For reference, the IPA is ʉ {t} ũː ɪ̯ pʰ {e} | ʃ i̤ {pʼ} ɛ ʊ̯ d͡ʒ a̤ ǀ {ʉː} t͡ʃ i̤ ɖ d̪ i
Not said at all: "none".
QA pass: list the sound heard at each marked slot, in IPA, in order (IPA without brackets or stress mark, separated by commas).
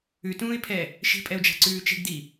t, ɛ, pʼ, ʉː